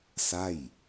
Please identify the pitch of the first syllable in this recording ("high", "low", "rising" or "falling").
falling